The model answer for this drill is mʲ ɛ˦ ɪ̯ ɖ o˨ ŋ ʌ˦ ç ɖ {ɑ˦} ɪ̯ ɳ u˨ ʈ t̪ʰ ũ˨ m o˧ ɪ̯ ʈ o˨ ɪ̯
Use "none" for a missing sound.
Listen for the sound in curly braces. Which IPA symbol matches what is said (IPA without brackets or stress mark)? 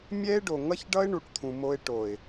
ʌ˦